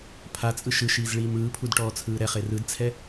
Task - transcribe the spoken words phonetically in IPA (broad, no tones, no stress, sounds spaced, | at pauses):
pʰ a t͡sʼ ɯ ʃ ɯ ʃ iː z ɭ iː m ɯː pʰ u d ʈ ɔː t͡sʰ ɯː ɾ ɛ χ e r ɯ d t͡sʰ ɛ